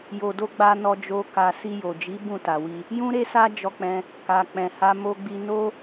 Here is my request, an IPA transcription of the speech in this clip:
jo˨do˧ɡ͡ba˧ nɔ˧d͡ʒo˧ ka˨ si˧jo˨d͡ʒi˨˦ bũ˦˨ta˨wi˧ | jũ˦ɾe˦sa˦ d͡ʒɔ˧k͡pɛ̃˧ | ka˨k͡pɛ̃˨ha˧ mo˧ɡ͡bi˧no˦

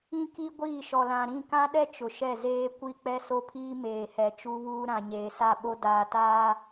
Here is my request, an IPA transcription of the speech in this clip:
ĩ˦ki˦ ɡʷiː˦˨ʃɔ˨lã˨ ɾĩ˦˨kã˦ɗɛ˦ t͡ʃʊ˨ʃɛ˦˨zeː˦ kʷi˦˨k͡pɛ˦so˦pʰiː˦ meː˨hɛ˨ t͡ʃu˦βuː˦ ɾã˨ɲeː˨sa˦˨ɓo˦ daː˨ taː˦

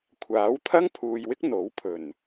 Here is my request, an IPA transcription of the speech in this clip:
kʷʰaː˨˥wt̪ʰɐ˥ŋpʰuː˨jwɪ˥k̚ n̪o˨˥wpʰɵ˨˩n

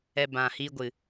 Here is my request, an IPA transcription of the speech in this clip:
ɛ˧bã˨hi˧ɡʷɨ˨

